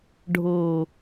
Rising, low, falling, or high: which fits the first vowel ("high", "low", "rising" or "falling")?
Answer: low